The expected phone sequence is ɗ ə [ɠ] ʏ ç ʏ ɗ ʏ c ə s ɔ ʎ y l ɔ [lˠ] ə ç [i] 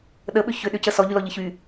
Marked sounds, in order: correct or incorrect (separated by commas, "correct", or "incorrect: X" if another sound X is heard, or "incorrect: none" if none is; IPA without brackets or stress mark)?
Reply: incorrect: ɓ, incorrect: ʎ, incorrect: y